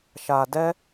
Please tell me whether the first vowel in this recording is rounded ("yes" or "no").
no